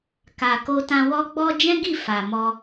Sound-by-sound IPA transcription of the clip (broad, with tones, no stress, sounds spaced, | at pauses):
k a˨ k o˧ t ã˧ w ɔ˧ ɡ͡b ɔ˧ d͡ʒ ɛ̃˦ ɡ i˦˨ f a˨ m ɔ˧